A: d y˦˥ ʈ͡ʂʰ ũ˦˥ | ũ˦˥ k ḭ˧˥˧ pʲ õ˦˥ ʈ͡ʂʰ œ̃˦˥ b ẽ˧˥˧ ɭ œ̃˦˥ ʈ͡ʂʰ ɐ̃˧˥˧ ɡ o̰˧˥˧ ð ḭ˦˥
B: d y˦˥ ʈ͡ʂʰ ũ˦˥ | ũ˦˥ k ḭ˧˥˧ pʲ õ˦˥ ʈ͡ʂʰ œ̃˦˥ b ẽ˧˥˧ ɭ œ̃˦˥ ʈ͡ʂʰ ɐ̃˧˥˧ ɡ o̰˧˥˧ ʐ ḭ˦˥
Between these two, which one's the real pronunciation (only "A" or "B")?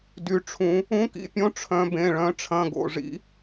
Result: B